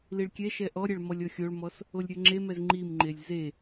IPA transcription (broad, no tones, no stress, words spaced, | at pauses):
liɭkʲɛʃɛ ʔɔɾʲɛɭ mɔlʲɔxʲoɭmɔs | olʲɾʲoŋ͡ǁemɛz ŋ͡ǃimŋ͡ǃelʲ ze